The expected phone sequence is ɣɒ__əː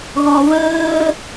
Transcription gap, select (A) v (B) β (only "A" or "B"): B